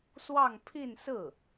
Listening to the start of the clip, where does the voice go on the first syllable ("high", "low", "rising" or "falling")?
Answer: falling